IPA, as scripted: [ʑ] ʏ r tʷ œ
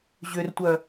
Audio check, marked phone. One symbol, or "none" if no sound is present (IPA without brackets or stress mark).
ʑ